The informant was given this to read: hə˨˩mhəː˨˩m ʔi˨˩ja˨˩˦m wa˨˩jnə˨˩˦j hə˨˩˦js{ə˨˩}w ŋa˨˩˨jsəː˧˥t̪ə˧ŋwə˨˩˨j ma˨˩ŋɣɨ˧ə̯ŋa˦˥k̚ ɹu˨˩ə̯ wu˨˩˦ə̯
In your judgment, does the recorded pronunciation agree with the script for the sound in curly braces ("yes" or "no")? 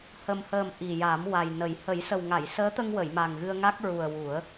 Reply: yes